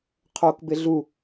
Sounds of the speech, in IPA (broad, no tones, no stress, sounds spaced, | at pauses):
qʰ o k b ɪ ɮ u